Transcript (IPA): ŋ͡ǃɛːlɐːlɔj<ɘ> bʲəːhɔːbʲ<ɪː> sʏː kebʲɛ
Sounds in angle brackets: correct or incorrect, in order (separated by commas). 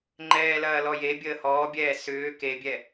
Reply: incorrect, incorrect